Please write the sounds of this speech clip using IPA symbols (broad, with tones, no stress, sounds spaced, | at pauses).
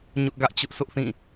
ɲ ʊ˦ ʔ ɡ ä˦ ʔ t͡ɕ ʊ˦ ʔ s ʊ˦ ʔ θ ĩ˦˨